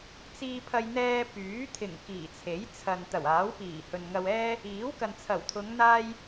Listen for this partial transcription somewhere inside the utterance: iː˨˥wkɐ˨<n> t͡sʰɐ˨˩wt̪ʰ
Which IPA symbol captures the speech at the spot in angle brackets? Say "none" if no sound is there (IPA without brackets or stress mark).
n